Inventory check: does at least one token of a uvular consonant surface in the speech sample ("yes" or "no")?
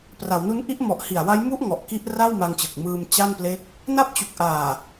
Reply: no